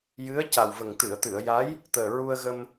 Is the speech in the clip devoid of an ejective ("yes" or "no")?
yes